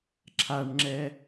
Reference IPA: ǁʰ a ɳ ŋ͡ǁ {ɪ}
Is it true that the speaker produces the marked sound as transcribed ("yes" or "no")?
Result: no